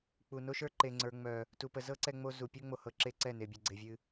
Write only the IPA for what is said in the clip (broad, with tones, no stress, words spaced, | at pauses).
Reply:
k͡pu˨ no˦ʃə˞˦ǃe˨ ŋ͡ǀə˞˨ ŋ͡mœ˨ | tu˨ pə˨zɤ˦ ǀɛ˦ŋ͡mo˦ zu˨ pʲo˦ŋ͡mo˨hɤ˨ ǁe˦ǀɛ˦˨ne˨ bʲɛ˨ɡ͡ǀe˨vʲɨ˦